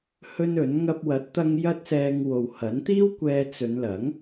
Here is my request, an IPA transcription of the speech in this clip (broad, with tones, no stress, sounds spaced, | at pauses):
h ɵ˥ n ɵ˨˥ n ŋ ɐ˧ p̚ w ɐ˨˥ t̚ t̪ ɐ˧ ŋ j ɐ˥ t̚ s ɛː˧ ŋ w o˨ w h ɐ˨˥ n t̪ iː˥ w kʷ ɛː˧ t͡s ɵ˨˧ n l ɐ˨˥ ŋ